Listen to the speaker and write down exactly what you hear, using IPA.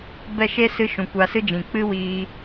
b ɛ˦˨ ʃ e˦ s ɨ˧ ʃ ũ˨ kʷ a˧ s ɨ˦ d͡ʒ ĩ˨ k͡p ɨ˦ w iː˧

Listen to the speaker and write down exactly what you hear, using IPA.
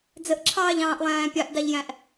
d͡z ə ʔ ǁʰ ɑː ʎ ɑ̃ː ʔ lˠ æ̃ː pʲ ɑ ʔ d ɑ ʎ j æ̃ ʔ

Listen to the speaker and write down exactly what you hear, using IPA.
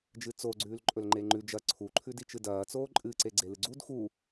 d͡ʒ ɨ t͡s o ɡ͡ǀ ʉː l ǃʼ ɵ l ŋ͡ǃ e ŋ͡ǃ ʉ d͡ʒ ɐ ǀʰ u ǃʰ ʉ d i t͡ʃ ɨ d ɐː t͡s oː ǃʼ ɨ ǀ e ɡ͡ǀ e l ɨ ɡ͡ǀ u d x u

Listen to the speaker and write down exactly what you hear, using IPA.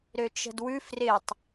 ɾ ø t͡ʃ ə̤ d w ʉ f r ɪ tˤ

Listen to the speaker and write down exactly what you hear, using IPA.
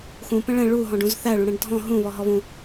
x ũ p ɛ̃ ɭ ɛ̃ ɭ u ɦ ɔ̃ ɖ ũ z θ æ ɭ ũ ɽ ɛ̃ ɖ dʱ ɔ̃ ɦ ũ β ɔ ɦ ɔ β ũ

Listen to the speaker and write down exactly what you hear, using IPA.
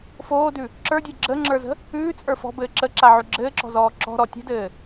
f oː d ʉ | ǁ ə˞ dʲ ə˞ ɡ͡ǁ ə ŋ͡ǁ ə˞ z ə̤ | ʉː t͡sʼ ə˞ f ɔ̤ b ɘː ǁ ə ǁ a ʕ ʉ ɡ͡ǁ ɘː ǁ ɔ̤ z ɔː ǁ ɔ̤ ɾ ɔ tʲ ə̤ d ɘː

